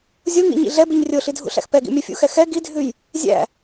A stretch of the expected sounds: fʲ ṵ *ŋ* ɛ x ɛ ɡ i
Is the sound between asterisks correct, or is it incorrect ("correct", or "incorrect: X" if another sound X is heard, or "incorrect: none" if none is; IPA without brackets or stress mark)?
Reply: incorrect: x